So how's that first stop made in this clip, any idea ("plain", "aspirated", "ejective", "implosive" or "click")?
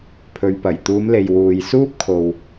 aspirated